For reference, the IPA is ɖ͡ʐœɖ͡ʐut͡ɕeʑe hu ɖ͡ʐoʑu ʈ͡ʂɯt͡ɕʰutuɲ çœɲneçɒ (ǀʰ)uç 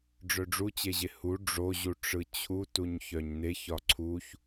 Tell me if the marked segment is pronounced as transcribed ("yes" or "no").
yes